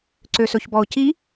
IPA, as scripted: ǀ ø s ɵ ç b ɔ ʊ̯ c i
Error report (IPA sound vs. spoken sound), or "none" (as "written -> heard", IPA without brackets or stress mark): none